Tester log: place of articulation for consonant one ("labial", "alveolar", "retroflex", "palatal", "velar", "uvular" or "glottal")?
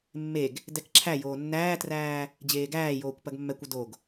labial